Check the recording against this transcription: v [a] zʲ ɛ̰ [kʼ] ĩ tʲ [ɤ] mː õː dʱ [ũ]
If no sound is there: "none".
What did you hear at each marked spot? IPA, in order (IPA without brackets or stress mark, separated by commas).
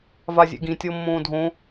a, ɡ, ɤ, õ